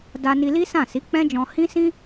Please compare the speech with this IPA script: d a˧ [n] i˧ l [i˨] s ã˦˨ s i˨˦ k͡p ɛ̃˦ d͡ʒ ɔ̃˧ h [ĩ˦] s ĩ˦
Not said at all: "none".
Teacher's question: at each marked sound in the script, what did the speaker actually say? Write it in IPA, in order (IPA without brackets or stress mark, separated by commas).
n, i˦, ĩ˦